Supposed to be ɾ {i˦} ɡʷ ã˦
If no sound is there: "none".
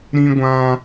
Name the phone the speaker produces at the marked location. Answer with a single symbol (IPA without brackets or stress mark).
ĩ˦